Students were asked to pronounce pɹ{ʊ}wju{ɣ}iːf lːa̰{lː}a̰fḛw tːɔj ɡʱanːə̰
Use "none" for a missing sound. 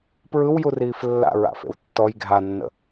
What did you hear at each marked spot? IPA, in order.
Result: ɯ, r, ɹ

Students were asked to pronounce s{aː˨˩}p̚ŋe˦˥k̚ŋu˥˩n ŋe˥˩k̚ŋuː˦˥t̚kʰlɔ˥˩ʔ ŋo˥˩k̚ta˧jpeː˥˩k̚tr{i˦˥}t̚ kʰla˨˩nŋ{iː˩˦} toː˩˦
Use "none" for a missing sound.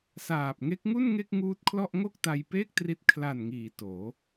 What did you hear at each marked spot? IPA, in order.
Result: aː˨˩, i˦˥, iː˩˦

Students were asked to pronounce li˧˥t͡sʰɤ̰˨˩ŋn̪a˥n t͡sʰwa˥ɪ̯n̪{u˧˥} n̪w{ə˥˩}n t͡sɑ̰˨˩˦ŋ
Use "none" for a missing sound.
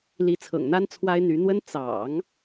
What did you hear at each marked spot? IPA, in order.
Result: y˧˥, ə˥

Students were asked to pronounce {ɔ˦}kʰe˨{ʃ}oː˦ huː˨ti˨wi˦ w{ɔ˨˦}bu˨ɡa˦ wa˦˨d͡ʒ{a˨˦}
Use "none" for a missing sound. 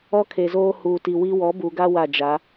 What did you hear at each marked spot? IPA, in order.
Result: ɔ˦, z, ɔ˨˦, a˨˦

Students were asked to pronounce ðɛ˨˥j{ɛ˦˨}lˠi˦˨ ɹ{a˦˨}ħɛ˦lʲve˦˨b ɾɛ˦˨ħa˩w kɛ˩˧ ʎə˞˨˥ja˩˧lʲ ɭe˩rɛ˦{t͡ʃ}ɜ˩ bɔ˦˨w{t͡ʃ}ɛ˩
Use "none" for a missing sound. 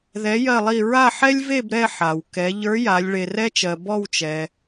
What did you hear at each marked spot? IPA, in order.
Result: ɜ˦˨, a˦˨, t͡ʃ, t͡ʃ

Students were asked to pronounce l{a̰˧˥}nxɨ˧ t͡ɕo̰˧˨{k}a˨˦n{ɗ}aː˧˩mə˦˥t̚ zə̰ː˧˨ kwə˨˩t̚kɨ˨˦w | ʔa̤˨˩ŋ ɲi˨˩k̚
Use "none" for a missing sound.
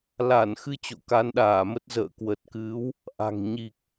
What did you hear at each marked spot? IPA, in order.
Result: a˧˩, k, ɗ

